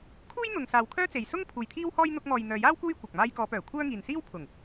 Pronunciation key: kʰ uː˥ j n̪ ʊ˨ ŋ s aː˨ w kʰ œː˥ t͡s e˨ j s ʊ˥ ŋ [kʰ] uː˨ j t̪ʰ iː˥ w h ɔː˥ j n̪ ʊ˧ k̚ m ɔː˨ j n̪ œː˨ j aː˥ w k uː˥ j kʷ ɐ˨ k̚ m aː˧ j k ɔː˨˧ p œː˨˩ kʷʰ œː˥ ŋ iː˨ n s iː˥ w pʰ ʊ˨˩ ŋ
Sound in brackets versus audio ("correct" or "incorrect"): incorrect